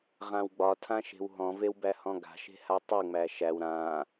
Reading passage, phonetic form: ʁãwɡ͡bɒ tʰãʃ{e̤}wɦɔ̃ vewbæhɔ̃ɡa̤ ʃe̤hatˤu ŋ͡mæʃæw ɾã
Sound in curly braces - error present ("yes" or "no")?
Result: no